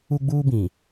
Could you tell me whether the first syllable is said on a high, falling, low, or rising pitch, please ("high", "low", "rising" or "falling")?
high